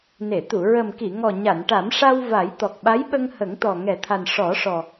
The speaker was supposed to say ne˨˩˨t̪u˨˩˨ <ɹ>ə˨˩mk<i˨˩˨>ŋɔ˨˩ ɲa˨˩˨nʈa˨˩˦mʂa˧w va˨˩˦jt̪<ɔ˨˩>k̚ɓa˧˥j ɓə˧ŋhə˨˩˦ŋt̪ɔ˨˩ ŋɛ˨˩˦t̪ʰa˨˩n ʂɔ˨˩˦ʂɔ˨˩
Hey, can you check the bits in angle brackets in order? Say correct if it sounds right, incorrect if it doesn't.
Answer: correct, correct, correct

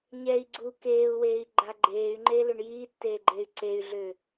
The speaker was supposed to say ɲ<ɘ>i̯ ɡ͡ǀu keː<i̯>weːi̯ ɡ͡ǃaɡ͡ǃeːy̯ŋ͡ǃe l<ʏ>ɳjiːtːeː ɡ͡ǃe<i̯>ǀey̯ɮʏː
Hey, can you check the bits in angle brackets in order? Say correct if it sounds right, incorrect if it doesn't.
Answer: incorrect: ɛ, incorrect: u̯, correct, incorrect: y̯

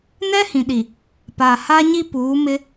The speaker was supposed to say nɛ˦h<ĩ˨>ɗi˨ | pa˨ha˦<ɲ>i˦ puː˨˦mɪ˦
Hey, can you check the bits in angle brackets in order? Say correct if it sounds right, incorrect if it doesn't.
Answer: correct, correct

